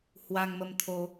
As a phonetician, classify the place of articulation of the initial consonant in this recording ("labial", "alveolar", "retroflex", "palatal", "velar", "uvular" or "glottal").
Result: glottal